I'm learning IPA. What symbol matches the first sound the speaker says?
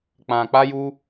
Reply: k͡p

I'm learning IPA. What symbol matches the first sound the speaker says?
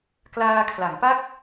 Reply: k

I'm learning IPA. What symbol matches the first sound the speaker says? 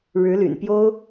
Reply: ɻ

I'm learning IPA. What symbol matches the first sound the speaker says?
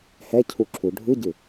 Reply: h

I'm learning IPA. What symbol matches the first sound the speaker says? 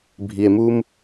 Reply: bʱ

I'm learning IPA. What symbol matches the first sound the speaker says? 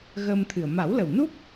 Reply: ɣ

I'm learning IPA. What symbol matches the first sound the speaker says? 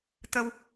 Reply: t̪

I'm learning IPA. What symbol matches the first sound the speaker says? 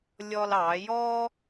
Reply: lʲ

